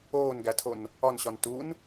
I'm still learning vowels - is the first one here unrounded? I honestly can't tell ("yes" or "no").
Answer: no